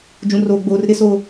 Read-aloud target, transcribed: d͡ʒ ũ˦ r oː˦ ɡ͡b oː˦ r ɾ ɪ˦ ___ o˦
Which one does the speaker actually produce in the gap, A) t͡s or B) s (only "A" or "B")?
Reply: B